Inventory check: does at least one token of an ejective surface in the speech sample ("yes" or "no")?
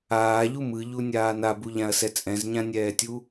yes